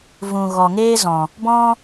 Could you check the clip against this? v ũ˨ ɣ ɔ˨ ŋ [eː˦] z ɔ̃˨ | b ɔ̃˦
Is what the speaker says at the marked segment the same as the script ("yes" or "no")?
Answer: yes